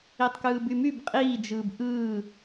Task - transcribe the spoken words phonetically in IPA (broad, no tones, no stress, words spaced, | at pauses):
itˤkɯːbymyb qʼiː d͡ʒɯːbʔɯː